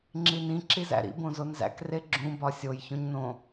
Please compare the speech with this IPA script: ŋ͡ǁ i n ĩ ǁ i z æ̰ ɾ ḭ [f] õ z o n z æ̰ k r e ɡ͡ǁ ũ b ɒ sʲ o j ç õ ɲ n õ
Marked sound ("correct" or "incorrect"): incorrect